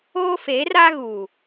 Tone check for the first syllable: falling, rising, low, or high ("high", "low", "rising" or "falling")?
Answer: high